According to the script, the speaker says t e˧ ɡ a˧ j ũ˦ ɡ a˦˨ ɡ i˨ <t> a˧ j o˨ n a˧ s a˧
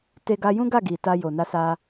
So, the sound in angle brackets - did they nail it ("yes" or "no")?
yes